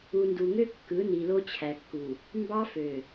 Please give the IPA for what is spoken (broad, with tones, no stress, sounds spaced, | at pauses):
u˨ n d u˨ ŋ ø˦ kː ɯ˨˦ n i˨ l o˦ t͡ɕʰ æ˨ kː u˨ | m b ɑ˦ f ø˨